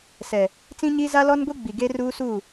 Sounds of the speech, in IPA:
s ɛ˨ | t͡s ĩ˦ ɲ iː˦ z a˦ l ɔ˦ n ɡʷ i˦ ɡ͡b i˨ ɡ e˦ r uː˦ s uː˦˨

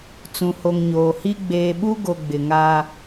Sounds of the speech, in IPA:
t͡s ũ˨ h o˨ ŋ ɲ oː˨ h i˦ ɡ͡b eː˨ ɓ u˦ ɡ o˨ ɡ͡b ɪ˨ ŋ a˦

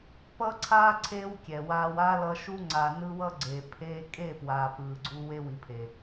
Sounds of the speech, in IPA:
p ʌ˦ ǀʰ aː˦ ǀʰ eː˦ w kʲ ɛ˨ w aː˧ w a˦ l ʌ˧ ʃ u˦ ŋ͡ǀ a˨ n ɯ˦ w ʌ˦ ɡ͡ǀ eː˨ pʰ eː˧ kʼ e˦˨ p w aː˨ p ɯː˨ ɡ͡ǀ u˧ w e˧ w i˨ pʰ e˨

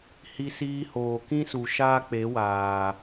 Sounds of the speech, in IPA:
h i˧ s iː˧ h oː˨ k ĩ˦ s u˨ ʃ aː˦ k͡p e˨˦ w aː˨

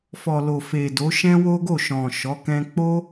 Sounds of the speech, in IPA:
f ɔ˨ l o˨ f e˨ d o˨˦ ʃ ɛ̃˦ w o˦ ɡ o˦˨ ʃ ɔ̃˨ ʃ ɔ˨˦ k ɛ̃˧ k͡p o˦

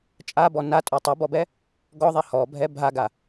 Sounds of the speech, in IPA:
t͡ʃʼ a b ɔ n a tʼ o tˤ o b ɔ b ɛ | ɡ ɔ ðˤ ɛ h ɔ bʱ ɛ bʱ a ɡ a

